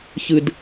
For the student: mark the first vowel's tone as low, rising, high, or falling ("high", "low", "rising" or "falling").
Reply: low